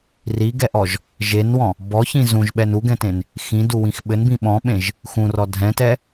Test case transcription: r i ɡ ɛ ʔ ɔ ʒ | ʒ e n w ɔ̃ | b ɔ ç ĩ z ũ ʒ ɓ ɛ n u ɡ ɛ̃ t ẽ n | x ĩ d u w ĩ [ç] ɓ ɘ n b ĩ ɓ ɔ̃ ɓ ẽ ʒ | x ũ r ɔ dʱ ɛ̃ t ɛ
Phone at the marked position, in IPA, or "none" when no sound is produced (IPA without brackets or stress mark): x